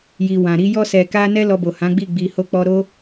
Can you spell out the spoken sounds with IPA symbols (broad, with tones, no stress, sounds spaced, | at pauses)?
j i˨ w ã˨ ɾ i˧ j ɔ˧ s ɛ˨ k a˧ n ɛ˦ l ɔ˧ b o˨ h ã˨˦ ɡ͡b i˦˨ ɡ͡b i˨ h o˧ k͡p ɔ˧ ɾ o˦